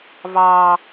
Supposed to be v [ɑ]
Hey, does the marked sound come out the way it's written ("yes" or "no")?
no